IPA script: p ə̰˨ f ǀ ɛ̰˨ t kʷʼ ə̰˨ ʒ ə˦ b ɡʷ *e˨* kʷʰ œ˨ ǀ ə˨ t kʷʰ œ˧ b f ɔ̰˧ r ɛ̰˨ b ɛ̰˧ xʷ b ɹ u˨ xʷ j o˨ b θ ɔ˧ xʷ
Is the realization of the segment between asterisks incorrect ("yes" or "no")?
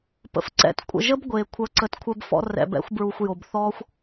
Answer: no